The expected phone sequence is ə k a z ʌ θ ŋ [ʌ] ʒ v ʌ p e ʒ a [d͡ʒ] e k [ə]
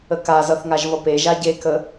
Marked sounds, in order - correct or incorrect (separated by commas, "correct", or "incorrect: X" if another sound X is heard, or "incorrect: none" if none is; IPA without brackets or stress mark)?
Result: incorrect: a, incorrect: ɟ, correct